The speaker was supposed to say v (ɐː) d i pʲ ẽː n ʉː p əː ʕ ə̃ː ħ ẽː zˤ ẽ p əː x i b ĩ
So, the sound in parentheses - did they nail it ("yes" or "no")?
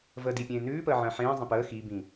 no